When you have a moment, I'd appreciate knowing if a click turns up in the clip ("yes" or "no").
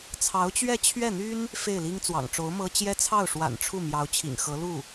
no